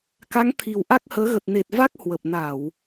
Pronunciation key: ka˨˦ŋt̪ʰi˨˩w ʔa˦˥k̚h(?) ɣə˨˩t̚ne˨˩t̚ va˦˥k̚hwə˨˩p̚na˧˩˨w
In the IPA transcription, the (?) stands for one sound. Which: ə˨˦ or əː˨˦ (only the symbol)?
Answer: əː˨˦